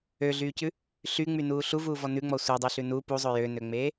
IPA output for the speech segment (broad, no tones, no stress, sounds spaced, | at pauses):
ø ɮ yː c ʉ | ɬ y ŋ͡m y n uː ɬ u v uː v ɔ n ʉ ŋ͡m ɔ sʷ e dˤ y ɬ ʉ n u p u zˤ ø j ø n ø ŋ͡m eː